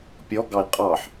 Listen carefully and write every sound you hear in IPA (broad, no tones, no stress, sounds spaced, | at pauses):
pʲ ɔ ɡ ɑ i̯ qʼ ɑ ħ